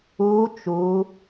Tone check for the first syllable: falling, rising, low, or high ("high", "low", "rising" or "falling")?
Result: rising